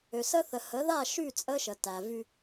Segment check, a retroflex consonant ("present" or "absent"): absent